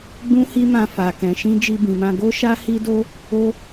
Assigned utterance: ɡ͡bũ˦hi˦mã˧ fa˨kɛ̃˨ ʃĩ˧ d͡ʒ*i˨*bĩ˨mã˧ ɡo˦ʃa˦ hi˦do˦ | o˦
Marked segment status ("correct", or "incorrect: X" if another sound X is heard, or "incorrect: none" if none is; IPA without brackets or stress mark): incorrect: i˧